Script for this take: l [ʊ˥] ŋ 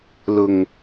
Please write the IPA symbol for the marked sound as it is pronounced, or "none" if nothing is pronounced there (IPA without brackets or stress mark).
ʊ˨˩